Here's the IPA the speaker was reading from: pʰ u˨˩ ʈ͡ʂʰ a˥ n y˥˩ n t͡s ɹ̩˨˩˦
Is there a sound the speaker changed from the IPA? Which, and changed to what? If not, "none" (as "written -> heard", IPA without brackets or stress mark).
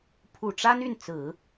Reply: ʈ͡ʂʰ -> ʈ͡ʂ